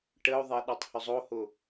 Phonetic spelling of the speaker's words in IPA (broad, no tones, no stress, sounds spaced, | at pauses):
ʈ ə o̯ ðˤ ɛ ɗ ɔ tˤ h ʏ zˤ o h ʊ